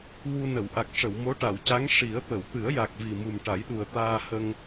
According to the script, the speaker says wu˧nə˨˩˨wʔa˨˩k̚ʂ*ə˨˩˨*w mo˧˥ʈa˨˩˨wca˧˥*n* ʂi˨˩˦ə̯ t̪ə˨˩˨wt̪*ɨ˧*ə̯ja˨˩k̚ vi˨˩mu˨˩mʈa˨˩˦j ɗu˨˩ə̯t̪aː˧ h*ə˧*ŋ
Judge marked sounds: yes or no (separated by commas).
yes, no, no, yes